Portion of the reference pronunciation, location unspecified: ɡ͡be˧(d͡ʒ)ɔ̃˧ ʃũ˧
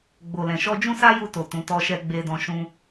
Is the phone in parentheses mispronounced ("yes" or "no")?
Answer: yes